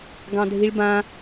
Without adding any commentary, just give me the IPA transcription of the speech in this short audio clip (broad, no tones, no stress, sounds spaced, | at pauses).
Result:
ɡ ɑ̃ dʱ i ɭ b ã